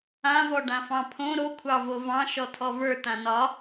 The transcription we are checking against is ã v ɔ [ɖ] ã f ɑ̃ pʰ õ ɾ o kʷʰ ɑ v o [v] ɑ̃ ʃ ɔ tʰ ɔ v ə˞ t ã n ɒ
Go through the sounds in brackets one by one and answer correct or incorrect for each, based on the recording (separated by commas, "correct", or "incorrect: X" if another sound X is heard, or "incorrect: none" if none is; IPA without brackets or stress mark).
correct, correct